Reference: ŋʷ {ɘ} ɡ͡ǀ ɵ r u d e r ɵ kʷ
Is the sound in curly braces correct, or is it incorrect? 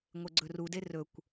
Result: incorrect: e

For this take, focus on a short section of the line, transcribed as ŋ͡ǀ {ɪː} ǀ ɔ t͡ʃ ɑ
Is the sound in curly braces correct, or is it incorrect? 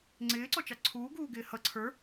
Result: correct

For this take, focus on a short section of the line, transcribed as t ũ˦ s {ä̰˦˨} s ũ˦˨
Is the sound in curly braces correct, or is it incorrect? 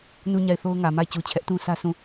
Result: incorrect: ä˦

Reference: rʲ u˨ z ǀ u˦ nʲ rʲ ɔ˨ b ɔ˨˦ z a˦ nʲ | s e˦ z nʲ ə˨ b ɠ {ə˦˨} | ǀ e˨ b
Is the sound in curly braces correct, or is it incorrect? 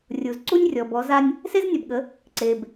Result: incorrect: ə˨˦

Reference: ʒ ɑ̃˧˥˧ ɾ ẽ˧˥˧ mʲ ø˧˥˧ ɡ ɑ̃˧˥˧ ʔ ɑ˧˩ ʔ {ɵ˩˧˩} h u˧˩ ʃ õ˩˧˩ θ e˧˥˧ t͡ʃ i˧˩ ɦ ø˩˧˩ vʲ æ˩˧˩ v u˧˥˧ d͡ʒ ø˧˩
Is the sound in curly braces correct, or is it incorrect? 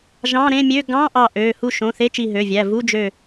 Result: incorrect: ø˩˧˩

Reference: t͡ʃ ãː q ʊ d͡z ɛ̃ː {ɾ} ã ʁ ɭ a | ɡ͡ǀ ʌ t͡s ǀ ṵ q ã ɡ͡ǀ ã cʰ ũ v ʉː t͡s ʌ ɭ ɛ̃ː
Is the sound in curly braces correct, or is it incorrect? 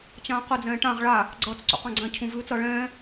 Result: incorrect: ʈ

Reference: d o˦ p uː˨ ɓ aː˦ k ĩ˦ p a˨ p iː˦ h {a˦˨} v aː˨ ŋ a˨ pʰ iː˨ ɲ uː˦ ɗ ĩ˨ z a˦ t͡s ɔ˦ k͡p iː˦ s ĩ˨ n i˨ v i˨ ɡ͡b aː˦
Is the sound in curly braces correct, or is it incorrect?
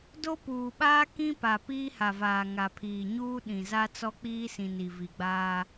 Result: incorrect: a˨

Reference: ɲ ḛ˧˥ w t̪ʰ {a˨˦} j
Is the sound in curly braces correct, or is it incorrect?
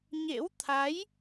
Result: correct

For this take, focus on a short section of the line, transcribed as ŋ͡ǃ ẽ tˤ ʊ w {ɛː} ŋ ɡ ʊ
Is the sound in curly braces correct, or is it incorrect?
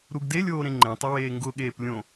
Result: incorrect: eː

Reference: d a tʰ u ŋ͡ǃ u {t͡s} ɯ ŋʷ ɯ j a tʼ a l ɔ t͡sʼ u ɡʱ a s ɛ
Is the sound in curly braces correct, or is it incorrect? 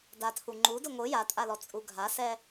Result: incorrect: d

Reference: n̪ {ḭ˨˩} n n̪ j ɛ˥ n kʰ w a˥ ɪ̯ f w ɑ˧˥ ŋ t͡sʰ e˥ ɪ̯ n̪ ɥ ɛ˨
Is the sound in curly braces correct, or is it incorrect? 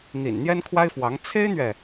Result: correct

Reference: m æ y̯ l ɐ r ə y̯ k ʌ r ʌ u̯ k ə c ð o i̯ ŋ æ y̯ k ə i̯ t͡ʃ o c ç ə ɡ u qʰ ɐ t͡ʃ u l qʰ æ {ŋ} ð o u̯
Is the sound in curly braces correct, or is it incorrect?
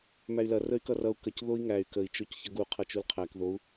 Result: incorrect: k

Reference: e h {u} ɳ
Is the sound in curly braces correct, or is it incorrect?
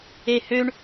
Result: incorrect: ø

